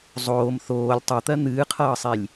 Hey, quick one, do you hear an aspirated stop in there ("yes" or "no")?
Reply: yes